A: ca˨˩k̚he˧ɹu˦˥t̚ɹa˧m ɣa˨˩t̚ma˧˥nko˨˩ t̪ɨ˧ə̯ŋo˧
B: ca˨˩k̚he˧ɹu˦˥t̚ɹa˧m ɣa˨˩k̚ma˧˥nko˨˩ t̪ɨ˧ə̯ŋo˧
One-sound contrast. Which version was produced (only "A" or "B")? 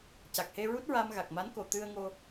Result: B